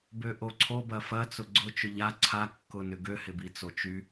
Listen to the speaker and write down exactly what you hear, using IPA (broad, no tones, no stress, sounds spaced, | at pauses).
b ø ʔ o ǀʰ o b ɐ f ɐ t͡s ʊ ɡ͡ǀ ʊ t͡ʃ ʊ ʎ a ǀʰ a kː ʊ n ʏ ɡ ø h ɪ b i t͡s o t͡ʃ y